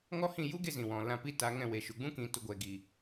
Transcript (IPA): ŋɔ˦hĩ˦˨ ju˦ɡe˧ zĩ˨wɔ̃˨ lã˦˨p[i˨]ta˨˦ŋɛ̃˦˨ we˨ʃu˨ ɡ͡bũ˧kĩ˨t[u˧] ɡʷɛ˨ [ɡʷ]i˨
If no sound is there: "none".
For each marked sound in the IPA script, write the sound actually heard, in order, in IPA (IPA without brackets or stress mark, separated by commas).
i˦, u˨, ɡ